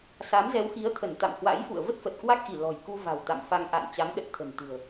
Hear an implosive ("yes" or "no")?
yes